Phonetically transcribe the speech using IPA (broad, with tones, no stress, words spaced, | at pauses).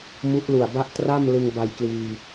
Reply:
mu˦˥ʔlu˨˩a̯ba˥˩ʔ tra˥˩m lɯ˧ŋba˧jkliː˧